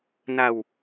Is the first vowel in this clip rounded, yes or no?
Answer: no